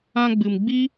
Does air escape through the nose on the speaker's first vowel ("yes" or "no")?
yes